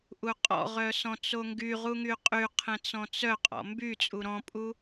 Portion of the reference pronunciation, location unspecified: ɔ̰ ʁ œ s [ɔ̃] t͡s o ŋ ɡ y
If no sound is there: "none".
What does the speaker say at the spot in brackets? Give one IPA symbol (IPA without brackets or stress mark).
ɔ̃